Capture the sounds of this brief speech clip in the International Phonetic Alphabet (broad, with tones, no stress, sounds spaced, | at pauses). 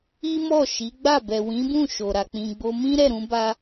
i˦ m ɔ˦˨ ʃ i˨˦ ɡ͡b a˦˨ b ɛ˨ w ĩ˨˦ b ũ˦˨ ʃ o˨ ɾ a˨ k͡p ĩ˨ ɡ͡b o˧ m ĩ˦ ɾ ɛ˦˨ ɾ ũ˧ b a˧